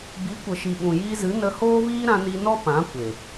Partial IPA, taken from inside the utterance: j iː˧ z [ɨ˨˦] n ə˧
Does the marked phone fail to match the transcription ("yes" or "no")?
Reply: no